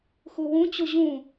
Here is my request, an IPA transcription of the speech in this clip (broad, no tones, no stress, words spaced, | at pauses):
xuwũ t͡ɕuʑũ